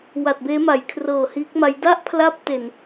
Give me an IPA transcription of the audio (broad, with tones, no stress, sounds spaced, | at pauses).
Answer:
w a˨˩ t̚ b eː˦˥ m a˩˦ j kʰ r ɤː˨˩ h iː˦˥ k̚ m a˦˥ j d a˥˩ ʔ pʰ l a˦˥ p̚ t e˨˩ n